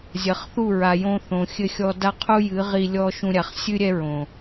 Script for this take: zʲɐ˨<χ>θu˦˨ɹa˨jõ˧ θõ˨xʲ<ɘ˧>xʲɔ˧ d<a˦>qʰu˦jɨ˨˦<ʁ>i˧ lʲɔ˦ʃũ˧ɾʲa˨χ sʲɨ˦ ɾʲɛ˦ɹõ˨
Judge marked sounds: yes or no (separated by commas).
yes, yes, yes, yes